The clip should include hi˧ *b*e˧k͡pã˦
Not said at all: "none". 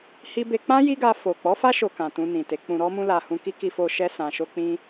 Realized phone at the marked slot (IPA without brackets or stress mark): b